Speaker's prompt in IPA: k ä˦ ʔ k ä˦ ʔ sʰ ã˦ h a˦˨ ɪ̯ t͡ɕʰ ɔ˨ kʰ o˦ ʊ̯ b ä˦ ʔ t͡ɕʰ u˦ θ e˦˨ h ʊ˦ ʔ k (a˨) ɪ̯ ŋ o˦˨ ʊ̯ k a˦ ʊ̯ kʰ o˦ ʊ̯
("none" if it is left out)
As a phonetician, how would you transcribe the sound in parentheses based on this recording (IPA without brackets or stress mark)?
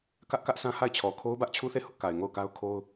a˨